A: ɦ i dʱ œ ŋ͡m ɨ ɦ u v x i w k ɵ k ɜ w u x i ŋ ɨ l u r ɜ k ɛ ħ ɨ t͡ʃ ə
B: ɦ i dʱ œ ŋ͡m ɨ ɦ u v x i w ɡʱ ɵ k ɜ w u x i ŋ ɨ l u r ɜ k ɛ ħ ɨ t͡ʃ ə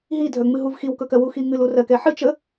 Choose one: A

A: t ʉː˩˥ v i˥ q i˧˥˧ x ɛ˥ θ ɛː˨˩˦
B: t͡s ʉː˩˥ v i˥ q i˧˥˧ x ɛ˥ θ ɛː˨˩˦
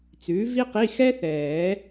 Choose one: B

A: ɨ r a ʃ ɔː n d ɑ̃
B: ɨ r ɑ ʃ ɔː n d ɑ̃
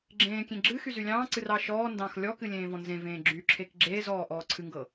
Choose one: B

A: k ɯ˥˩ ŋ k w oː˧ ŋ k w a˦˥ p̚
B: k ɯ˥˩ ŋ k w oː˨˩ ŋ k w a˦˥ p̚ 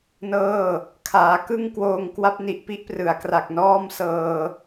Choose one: A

